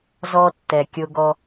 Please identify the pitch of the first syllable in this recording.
high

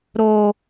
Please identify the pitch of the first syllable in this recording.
high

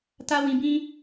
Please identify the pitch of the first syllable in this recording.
high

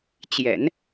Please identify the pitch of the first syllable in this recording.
low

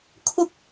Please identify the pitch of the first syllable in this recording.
high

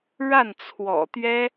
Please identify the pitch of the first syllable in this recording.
falling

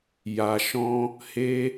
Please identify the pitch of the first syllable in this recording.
low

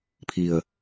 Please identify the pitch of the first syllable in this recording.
low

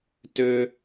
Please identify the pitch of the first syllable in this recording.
high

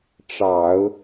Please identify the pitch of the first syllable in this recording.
low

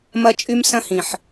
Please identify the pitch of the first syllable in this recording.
high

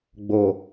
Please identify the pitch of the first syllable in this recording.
low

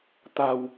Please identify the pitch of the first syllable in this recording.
low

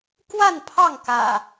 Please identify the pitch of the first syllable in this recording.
falling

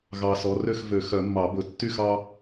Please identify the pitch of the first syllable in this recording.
low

